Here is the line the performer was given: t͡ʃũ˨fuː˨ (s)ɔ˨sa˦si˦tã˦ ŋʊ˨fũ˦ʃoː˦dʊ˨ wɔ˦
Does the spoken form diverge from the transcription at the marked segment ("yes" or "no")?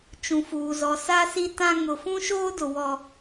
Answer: yes